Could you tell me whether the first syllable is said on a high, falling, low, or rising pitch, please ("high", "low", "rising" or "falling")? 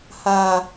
low